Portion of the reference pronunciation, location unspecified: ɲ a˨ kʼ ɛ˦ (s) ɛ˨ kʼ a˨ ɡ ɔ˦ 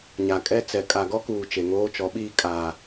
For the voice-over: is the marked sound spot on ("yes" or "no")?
no